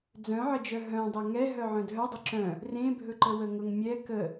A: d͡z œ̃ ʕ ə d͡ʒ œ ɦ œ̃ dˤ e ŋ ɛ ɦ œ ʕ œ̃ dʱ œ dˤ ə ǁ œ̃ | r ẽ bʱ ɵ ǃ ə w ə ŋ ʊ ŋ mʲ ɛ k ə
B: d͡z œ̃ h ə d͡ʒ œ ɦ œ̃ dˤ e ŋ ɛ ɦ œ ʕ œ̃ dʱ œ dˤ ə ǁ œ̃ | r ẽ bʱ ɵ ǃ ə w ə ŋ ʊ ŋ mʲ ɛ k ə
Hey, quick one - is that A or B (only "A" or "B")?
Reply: A